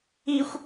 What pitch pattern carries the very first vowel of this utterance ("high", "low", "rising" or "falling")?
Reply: high